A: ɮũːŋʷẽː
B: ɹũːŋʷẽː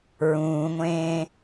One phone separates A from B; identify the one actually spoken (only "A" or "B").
B